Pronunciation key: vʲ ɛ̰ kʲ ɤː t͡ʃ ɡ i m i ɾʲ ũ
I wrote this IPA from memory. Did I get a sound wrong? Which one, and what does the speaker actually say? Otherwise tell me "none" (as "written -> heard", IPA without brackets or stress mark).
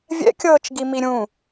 none